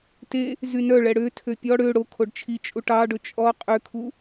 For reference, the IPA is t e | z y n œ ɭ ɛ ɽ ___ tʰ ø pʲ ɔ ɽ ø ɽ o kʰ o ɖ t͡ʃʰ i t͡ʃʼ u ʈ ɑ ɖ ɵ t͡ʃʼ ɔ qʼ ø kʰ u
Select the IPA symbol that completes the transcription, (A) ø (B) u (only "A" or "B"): A